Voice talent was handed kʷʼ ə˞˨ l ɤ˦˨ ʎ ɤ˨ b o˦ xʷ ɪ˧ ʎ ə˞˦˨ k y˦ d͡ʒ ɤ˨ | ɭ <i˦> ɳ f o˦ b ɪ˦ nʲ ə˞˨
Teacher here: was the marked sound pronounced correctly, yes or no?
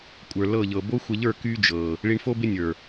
no